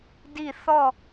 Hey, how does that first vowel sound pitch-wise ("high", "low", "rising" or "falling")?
falling